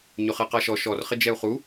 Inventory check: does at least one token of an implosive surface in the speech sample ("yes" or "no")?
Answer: no